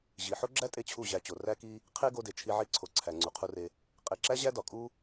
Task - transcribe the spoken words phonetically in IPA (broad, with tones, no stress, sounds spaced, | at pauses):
ʑ i˨ ħ o˦ ɡ͡ǁ æ˦ tʼ e˧ t͡ɕʰ u˦˨ ʑ æ˧ t͡ɕ o˨ r æ˦ k i˦ | qʰ e˦ ɡ o˧ d e˨ t͡ʃʰ i˧ ʕ i˧ ǀʰ o˨ ǀʰ æ˨ ŋ͡ǀ u˨ qʰ u˧ r e˧ | qʼ e˨ ǁ æ˦ ʑ æ˦ d ɒ˨ kʼ u˦